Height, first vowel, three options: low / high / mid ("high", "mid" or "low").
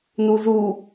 high